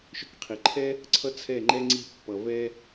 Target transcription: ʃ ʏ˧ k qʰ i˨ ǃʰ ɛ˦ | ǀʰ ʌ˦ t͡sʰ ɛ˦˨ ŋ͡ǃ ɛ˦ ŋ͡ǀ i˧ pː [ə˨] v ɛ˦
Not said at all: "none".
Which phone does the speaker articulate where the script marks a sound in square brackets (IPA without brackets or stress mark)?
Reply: ʌ˨